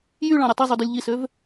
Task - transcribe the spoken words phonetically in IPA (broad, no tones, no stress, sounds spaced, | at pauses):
j y ɭ ɑ̃ ɾʲ e tˤ i zˤ u d y lʲ ʎ i s ø v